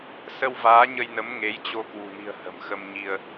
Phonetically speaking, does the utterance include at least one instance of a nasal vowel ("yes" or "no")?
no